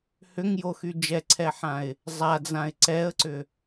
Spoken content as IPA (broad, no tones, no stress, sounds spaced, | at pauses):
h ʏ ŋ j o x y d͡ʒ ɛ ǀʰ ɛ ħ ã ɪ̯ | zˤ a d͡z ã ɪ̯ ǀ ɛ ə̯ ǀ ʏ